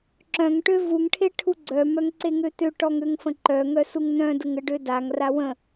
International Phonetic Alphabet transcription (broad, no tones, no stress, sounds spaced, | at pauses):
ǁ œ̃ ŋ ʈ ø v u ŋ ʈʰ e ʈʰ u ɡ͡ǀ œ m œ ŋ ǀ e ŋ ø t̪ ø ʈ ɔ ŋ ø ŋ f ə̃ ǃ œ ŋ œ s u ŋ n̪ œ̃ d ə ŋ ə ɖ ø d a ŋ r a w ə̃